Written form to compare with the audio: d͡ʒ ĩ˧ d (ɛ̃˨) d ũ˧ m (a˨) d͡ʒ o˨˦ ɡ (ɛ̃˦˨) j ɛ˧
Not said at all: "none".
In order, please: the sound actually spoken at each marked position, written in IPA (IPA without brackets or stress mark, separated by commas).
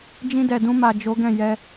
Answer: ɛ˨, a˨, ɛ̃˦˨